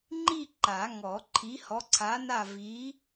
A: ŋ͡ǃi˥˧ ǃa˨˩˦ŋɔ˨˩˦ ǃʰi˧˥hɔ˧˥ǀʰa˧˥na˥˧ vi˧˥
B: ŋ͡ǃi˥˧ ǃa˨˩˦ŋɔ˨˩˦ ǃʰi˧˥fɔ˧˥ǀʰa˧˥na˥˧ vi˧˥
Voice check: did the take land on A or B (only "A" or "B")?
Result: A